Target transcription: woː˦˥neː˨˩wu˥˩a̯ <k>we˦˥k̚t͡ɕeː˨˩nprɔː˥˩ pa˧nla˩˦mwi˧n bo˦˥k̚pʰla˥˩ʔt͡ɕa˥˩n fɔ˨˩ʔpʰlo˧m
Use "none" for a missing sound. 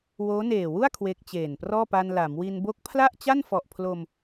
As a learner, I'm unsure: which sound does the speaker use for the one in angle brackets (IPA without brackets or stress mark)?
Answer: kʰ